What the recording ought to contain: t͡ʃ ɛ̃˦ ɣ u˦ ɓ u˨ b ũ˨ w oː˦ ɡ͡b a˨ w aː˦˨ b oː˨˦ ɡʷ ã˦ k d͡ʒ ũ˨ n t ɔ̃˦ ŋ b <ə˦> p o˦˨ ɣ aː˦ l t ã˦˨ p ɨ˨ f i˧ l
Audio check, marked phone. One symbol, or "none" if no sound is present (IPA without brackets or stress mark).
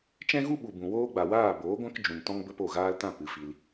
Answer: ə˦